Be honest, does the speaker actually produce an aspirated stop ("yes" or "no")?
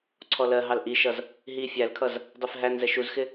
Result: yes